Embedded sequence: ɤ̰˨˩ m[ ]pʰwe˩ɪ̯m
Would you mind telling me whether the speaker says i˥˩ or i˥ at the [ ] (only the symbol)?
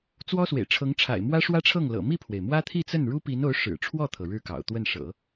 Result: i˥˩